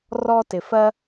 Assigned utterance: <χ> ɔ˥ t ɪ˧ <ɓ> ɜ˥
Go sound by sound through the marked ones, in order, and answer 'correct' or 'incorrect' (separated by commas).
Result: incorrect, incorrect